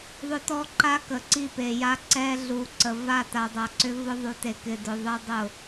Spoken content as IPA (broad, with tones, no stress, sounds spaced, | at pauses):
ðˤ ʏ˦ t ɔ˦ ǃ a˦ k ə˨ ǀ i˦˨ p e˨ j a˦ ǀ ɛ˦ ɮ u˨ ǀ ə˨ v a˦˨ t a˨ dˤ a˨ ǀ ʏ˦ v ʊ˦ ðˤ u˨ t e˨ k ɪ˨ d ʊ˨ ðˤ ɛ˦ dˤ ʊ˦˨